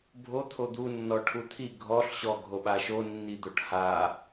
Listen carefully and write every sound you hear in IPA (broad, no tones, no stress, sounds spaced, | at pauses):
bʱ o t̪ʰ o d̪ u nː ɔ ʈʰ u t̪ʰ i ɡʱ ɔ ɬ ɕ ɔ ɡʱ o ɓ a ʃ o nː i d̪ o ʈ h a